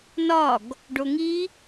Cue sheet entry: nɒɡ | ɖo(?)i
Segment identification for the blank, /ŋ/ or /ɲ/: ŋ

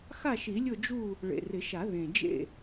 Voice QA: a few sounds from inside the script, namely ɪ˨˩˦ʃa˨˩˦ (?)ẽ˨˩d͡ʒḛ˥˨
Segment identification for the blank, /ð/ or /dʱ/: ð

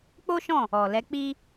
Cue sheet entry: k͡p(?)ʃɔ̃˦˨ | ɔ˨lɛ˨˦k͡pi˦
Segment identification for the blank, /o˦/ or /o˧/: o˦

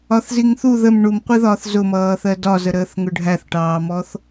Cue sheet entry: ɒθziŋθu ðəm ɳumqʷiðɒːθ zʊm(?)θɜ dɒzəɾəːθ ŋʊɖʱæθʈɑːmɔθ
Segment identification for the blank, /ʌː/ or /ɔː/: ʌː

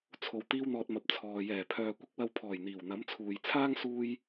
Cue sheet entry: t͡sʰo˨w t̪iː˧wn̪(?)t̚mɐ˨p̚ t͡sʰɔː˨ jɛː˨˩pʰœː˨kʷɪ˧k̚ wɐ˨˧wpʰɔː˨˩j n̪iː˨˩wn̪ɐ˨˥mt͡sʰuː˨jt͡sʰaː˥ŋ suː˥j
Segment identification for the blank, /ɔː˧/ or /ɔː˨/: ɔː˨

